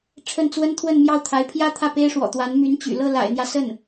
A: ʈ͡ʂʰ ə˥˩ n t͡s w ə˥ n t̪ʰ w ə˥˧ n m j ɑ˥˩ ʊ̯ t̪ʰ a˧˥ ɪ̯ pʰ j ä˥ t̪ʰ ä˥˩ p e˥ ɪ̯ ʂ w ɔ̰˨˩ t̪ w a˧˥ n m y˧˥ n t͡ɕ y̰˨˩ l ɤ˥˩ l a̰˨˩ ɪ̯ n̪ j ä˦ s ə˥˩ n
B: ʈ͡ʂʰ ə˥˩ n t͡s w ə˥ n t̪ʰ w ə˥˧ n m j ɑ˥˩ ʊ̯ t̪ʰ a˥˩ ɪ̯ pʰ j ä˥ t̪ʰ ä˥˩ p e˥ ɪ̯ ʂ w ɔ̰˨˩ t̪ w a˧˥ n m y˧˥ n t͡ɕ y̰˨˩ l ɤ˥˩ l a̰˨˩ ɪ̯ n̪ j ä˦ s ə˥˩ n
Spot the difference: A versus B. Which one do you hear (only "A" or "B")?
A